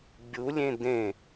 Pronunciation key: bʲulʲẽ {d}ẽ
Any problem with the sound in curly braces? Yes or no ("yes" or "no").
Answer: no